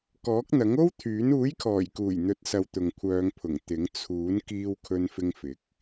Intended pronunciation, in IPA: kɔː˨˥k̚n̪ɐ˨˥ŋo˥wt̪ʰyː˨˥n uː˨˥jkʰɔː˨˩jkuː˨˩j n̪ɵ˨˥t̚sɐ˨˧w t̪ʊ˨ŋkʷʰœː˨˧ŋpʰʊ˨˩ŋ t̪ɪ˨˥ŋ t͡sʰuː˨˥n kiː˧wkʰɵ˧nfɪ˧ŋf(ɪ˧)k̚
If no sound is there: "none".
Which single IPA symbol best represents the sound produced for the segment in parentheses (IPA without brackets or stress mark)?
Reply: ɪ˨˥